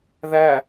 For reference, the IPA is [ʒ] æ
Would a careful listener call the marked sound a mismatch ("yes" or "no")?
yes